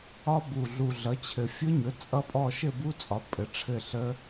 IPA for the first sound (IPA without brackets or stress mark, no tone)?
ɒ